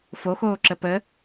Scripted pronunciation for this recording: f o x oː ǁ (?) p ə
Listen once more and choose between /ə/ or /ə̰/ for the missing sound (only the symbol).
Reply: ə